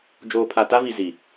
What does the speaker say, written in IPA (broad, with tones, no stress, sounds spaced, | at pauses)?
d͡ʒ oː˨ pʰ a˨ t a˦ v i˨ z i˨